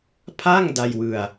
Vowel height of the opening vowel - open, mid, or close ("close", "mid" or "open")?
open